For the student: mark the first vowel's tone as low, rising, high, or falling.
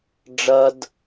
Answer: high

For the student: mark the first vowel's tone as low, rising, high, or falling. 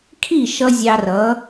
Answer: falling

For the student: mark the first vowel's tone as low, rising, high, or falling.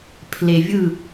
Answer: low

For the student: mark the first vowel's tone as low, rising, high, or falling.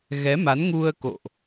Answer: rising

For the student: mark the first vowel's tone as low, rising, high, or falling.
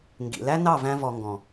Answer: low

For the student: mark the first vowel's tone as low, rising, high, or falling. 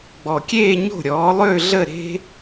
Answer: low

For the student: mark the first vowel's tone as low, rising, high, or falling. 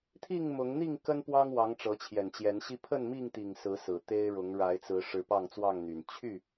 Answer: falling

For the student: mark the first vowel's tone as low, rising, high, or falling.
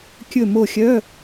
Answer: falling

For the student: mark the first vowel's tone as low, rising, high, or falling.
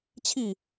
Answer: falling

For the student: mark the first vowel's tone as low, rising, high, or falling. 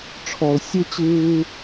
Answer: low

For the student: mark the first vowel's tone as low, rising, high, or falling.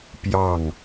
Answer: falling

